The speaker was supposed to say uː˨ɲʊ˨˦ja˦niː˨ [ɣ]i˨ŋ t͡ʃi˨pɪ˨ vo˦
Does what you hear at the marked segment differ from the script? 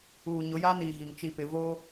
no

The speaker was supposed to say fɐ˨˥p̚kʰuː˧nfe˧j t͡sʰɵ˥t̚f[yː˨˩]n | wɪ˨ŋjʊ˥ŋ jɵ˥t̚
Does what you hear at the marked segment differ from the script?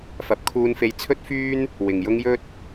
yes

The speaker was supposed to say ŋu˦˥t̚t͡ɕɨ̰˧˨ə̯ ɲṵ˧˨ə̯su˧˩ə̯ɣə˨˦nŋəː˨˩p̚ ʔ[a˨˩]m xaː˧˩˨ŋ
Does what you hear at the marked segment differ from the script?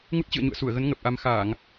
yes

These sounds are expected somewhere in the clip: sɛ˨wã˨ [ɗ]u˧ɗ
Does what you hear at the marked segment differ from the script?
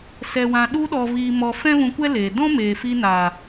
no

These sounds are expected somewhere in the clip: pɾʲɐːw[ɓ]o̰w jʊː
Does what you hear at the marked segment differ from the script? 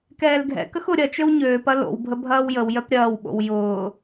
no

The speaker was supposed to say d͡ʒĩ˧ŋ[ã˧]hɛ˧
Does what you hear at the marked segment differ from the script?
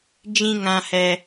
no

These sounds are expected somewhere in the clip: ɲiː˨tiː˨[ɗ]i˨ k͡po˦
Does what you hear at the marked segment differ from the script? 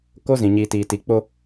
yes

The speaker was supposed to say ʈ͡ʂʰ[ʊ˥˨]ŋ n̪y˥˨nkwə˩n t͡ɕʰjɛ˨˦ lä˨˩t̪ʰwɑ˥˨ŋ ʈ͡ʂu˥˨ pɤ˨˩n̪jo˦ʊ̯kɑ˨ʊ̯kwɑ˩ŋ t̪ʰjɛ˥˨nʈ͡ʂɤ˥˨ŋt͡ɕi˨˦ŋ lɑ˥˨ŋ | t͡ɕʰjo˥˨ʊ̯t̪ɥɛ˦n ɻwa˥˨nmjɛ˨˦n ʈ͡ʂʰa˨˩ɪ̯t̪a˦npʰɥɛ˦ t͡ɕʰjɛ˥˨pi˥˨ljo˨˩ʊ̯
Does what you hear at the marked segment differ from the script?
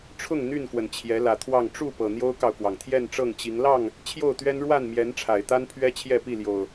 no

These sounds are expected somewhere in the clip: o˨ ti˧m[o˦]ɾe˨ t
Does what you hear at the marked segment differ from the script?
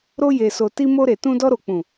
yes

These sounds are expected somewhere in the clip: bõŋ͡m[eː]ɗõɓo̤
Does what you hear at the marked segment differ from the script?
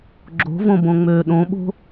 yes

